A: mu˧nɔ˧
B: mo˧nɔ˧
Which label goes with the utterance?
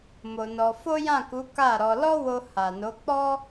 B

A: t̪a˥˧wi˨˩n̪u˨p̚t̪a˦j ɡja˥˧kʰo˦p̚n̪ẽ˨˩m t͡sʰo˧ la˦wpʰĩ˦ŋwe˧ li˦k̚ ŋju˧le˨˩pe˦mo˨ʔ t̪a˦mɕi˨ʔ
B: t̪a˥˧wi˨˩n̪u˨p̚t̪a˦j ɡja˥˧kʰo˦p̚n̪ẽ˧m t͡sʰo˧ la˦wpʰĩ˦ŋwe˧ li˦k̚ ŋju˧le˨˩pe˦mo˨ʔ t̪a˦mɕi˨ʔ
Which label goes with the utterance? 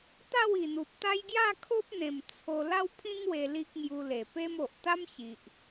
A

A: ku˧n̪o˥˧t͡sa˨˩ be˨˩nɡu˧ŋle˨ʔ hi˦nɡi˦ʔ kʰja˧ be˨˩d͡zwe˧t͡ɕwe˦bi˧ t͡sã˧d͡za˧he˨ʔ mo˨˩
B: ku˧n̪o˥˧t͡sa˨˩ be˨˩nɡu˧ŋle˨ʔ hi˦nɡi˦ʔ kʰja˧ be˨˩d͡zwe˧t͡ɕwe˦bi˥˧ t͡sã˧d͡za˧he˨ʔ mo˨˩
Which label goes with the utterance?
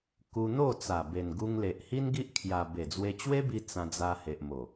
A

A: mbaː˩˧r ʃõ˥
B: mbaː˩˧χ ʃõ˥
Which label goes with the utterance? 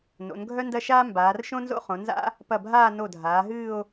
A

